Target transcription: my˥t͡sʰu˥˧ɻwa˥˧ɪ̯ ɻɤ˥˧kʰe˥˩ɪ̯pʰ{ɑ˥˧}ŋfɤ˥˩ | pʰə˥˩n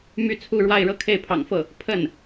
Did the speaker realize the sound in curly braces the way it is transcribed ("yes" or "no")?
no